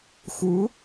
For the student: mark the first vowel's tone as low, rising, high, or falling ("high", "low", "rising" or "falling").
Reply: rising